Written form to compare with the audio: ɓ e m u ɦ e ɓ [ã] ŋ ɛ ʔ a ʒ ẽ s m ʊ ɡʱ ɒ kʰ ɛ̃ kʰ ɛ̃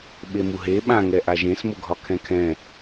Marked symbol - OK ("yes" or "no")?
yes